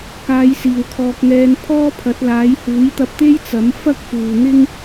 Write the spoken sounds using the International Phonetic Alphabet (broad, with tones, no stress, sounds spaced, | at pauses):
k aː˨˧ j s iː˨˩ w kʰ ɔː˨ k̚ ŋ ɛː˧ n pʰ ɔː˥ pʰ ɐ˨˥ t̚ l aː˨˥ j h uː˨˥ j t̪ ɐ˧ p̚ t̪ e˥ j t͡s ɐ˨˥ m f ɐ˥ k̚ f uː˨ n̪ ɪ˥ ŋ